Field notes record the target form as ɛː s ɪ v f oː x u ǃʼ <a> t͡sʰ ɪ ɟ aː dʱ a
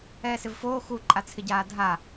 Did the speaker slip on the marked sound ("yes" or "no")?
no